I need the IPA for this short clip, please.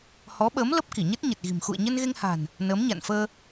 h ɔ˨˦ ɓ əː˨˦ m l ə˦˥ p̚ k i˧˩ ɲ ə˦˥ t̚ ɲ ə˨˩ t̚ ɣ i̤˨˩ m x ṵ˧˨ ə̯ ɲ ə˧ n ɣ e˧ ŋ h a̤˨˩ n | n əː˨˦ m ɲ a̰˧˨ n f əː˧

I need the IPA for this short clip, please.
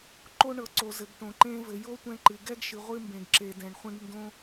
ǃ o˧ ɳ ɤ˩ ǀ o˩ z ɘ˩ ɡ ʈ õ˩ ǃ ẽ˧ v ɘ˩ j o˧ tʷ ɛ̃˧ ǃ ɨ˩ ɡ ɛ˧ ɡ ʃ ɨ˩ ʁʷ ɨ˧ m b ẽ˩ ɡ ǁ e˩ d ɛ̃˩ ɳ χʷ ẽ˧ ɡ n d õ˧

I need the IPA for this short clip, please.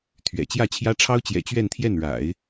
t̪ʰ ɥ ɛ̰˨˩ t͡ɕ j ä˥˩ t͡ɕʰ j ä˥ ʈ͡ʂʰ ɑ˥ ʊ̯ t͡ɕ j ɛ̰˨˩ t͡ɕ ɥ ɛ˥˧ n t̪ʰ j ɛ˥˩ n ɻ a̰˨˩˦ ɪ̯

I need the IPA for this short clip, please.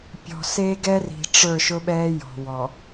pʲ ɔ̤˨ s eː˦ ɡ ɛ˦ r i̤˨ ʈ͡ʂ ə˞˦˨ ʃ ʊ˦ ɓ ɛː˦ j ɔ̤˨ w ɔ˨

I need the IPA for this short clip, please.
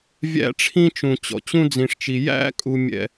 vʲ æ̰˦ ʈ͡ʂʰ ĩ˦ t͡ʃ ũ˨ t͡ɕ ɔ̰˨ t͡ɕ ũ˦ d͡z ĩ˨ ʂ t͡ʃ i˨ j æ̰˦ kʼ u˦ mʲ ɛ̰˦

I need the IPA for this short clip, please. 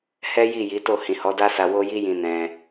h ɛ˦ j i˦˨ j i˨˦ t o˦˨ h ĩ˨ h ɔ˨˦ d a˦ s a˧ w o˦ j i˦ j ĩ˧ n ɛ̃˧

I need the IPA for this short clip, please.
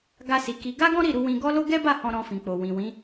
ɡ a˧ s i˨ k i˧ ɡ a˦ ɡ ɔ̃˦ ɾ i˦˨ ɾ u˨˦ w ĩ˧ ɡ ɔ˦ l o˦ ɡ ɛ˦ b a˦˨ h ɔ̃˧ ɾ ɔ̃˧ f ĩ˨ k͡p o˨ w ĩ˨ w ĩ˨˦

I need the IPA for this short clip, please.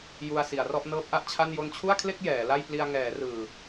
j u˧ a̯ s i˩˦ a̯ r ɔ˥˩ ʔ n ɤː˦˥ p̚ ʔ a˦˥ ʔ t͡ɕʰ a˥˩ n j o˧ n t͡ɕʰ u˥˩ a̯ kʰ l e˥˩ k̚ j ɛː˩˦ l a˥˩ j p l i˧ a̯ ŋ ɛː˩˦ r ɯː˨˩

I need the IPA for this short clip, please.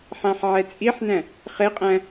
ħ ã ħ ʕ ɛ t͡sʼ i ħ n æ̃ | χ e qʼ æ̃

